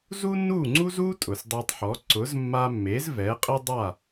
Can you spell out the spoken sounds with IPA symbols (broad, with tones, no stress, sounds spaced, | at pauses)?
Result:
z u˥ nː u˥˩ ŋ͡ǀ u˥ z u˥ tʼ ʊ˩ s dˤ e˧ tˤ ħ ɔ˩˥ ǀ ʊ˩˥ z mː a˧ mː e˩˥ z v ɛ˩˥ qʼ ɪ˥ dˤ a˥˩